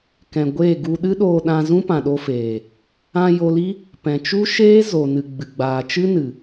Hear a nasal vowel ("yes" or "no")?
yes